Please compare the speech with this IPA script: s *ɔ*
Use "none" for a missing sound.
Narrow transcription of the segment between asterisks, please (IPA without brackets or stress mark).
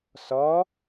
ɔ